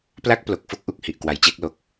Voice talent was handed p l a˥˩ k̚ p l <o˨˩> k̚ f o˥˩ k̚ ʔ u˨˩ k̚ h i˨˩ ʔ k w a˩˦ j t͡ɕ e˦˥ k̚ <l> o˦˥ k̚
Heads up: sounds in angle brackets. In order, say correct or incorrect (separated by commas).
correct, correct